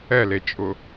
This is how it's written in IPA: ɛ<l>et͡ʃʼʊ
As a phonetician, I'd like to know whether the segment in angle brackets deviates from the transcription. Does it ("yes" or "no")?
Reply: no